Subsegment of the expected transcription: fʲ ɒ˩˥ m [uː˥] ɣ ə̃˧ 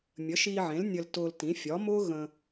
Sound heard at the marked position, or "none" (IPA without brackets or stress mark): ʊː˥